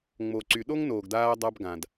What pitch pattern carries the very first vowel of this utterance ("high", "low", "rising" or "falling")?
low